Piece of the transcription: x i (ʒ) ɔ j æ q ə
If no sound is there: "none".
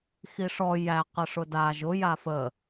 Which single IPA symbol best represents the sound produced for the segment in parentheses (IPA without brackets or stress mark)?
ʂ